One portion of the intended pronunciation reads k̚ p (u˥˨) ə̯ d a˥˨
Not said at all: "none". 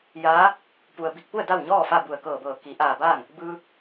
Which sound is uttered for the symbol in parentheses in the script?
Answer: u˥˨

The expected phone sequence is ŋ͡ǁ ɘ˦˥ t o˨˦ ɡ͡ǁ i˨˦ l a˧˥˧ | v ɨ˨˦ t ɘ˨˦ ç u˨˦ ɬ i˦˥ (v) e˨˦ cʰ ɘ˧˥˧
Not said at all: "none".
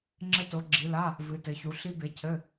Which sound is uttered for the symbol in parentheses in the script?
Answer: b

